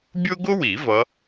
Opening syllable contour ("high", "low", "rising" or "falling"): high